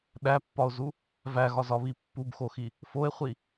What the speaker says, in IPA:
ɗ æ pː ɒ o̯ z u | v æ ɣ ɒ z ɒ β i pː u b x o x i | f o e̯ χʷ i

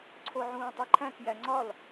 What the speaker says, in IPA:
ǀʰ o ʕ ũː tˤ i ǃʰ æ̃ k j æ ŋ͡ǀ ɒ l

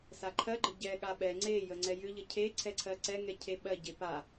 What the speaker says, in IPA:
s a ǃʰ ɜ ɡ͡ǃ ə ɟ ɛ ɠ a ɓ ɛ ŋ͡ǀ e j ə ŋ͡ǀ ɛ j ʏ ʎ ə cʰ e ǀʰ ɛ ǀʰ ɜ ǀ ɛ ŋ ɛ cʰ e ɓ ɜ ɟ e p a

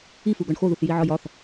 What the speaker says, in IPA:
i f u ɡ ɒ ɳ x o ð u θ j i ʕ ɒ j ɒ θ

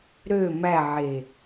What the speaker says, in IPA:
ɾ ø m æ ʕ e

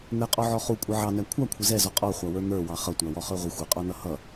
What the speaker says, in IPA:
n̪ ɛ qʼ ɔ ʕ ɔ χ u kʷʼ ʌ ʕ ɑ n æ kʷʰ ɑ kʷʰ ɪ z ɛ z ɔ qʼ ɔ χʷ ɑ w ə˞ n̪ ə˞ w ɑ χ ʌ tʷ æ w ɔ χ ə˞ ʁʷ ɪ xʷ ɪ qʼ ɔ n ʌ h ʌ

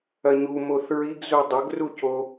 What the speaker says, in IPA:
ɐ ɲ u m o θ ɹ i ɡ z u dˤ ɐ ɡ r u c o

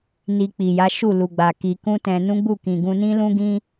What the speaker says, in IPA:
n i˧ k͡p i˨ j a˨˦ ʃ u˦˨ l u˨ ɡ͡b a˨ k i˧ k ũ˦ t ɛ̃˧ n ũ˦ ɡ͡b u˦˨ k ĩ˨ ɡ ũ˧ n ĩ˦ l ũ˦ ɡ ĩ˦

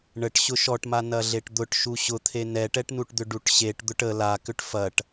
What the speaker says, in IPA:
ɳ ə ʈ ɕ ʊ ʃ ɔ ʈ m a n ɐ ɮ e ʈ d̪ ʊ ʈ ʃ u ɕ ʊ t̪ʰ e n ɛ ʈ ɛ ʈ n u ʈ d̪ ʏ ɖ u ʈ ɕ e ʈ d̪ ʊ ʈ ə l a k ʏ ʈ f ɐ ʈ

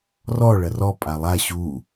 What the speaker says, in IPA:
r ɔ ɭ ɐ r ɔ pʼ a lˠ a ɕ u

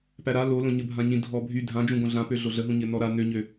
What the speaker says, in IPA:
p æ ɾ a l o l õ ɲ ə bʱ ã ɲ ĩ dʱ ɔ bʱ y dʱ ã d͡ʒ ũ ɡ õ ɮ ã p ø ɮ o ɮ ə ɦ ũ ɲ ɘ n ɔ ɾ a n ø ɲ ø

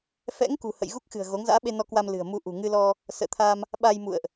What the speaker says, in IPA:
f ɛ̰˧˥ ŋ k ṳ˨˩ h ə̰˧˨ j ɣ u˦˥ k̚ x ɨ̤˨˩ ə̯ ɣ o˨˦ ŋ z a̰ː˧˥ ɓ e˧ n ɔ˧ k w a˧ m l ɨ̤˨˩ ə̯ m u˧ ʔ ṳ˨˩ ŋ ɨ˧ l ɔ˧ | s ə̰ː˧˨ t̪ʰ a˧ m | ɓ a˧ j m ṵ˧˨ ə̯ ʔ

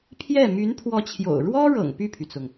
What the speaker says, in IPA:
pʰ j ɛ˥˩ m y˧˥ n pʰ w ɔ˧˥ t͡ɕʰ j o̰˨˩ ʊ̯ ɻ w ɔ˥ ɻ ɤ̰˨˩ ŋ p y˥˩ pʰ y˩ t͡s ʊ˩ ŋ

